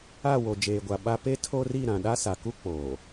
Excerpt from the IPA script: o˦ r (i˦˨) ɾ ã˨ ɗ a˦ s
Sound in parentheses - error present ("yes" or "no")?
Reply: no